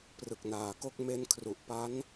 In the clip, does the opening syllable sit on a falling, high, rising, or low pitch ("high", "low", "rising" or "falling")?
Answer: low